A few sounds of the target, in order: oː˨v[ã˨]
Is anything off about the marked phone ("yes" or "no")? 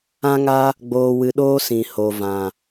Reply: no